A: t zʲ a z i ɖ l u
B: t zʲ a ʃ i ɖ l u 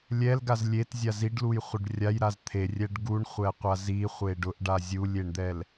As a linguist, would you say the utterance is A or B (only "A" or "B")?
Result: A